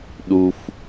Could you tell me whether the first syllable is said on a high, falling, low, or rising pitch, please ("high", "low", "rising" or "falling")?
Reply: high